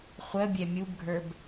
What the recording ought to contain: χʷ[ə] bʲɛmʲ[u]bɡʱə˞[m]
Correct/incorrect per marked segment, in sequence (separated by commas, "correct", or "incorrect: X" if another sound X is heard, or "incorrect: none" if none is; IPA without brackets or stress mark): correct, correct, incorrect: b